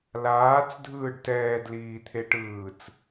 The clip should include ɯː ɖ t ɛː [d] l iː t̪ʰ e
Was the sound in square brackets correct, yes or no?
yes